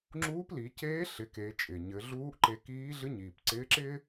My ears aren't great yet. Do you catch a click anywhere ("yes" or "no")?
yes